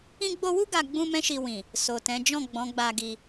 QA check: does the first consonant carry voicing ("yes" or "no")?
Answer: yes